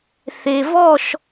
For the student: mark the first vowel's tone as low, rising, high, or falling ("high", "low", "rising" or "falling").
low